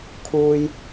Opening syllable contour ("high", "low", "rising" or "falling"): low